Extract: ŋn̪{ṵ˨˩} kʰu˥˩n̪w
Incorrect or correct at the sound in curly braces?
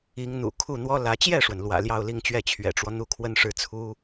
correct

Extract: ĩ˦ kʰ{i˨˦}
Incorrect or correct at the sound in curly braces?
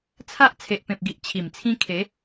incorrect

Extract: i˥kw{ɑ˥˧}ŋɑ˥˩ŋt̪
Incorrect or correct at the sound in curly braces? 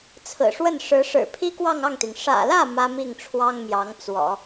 correct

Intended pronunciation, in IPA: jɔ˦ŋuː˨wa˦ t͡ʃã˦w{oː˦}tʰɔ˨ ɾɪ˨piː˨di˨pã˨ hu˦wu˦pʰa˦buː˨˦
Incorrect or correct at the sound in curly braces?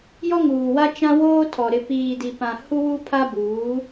correct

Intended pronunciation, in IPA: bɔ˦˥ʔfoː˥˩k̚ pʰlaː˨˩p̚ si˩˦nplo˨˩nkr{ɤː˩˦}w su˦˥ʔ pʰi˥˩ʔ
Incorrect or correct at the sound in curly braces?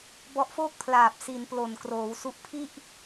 incorrect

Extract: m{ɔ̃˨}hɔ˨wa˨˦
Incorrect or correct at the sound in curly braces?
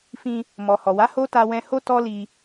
incorrect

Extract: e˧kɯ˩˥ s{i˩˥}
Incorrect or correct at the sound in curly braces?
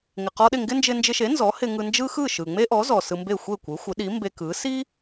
incorrect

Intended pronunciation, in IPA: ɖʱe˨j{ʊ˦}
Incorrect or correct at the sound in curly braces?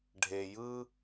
incorrect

